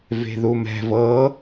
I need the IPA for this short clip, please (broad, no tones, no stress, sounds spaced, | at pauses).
v e̤ ð u m ɛ̤ v ɤ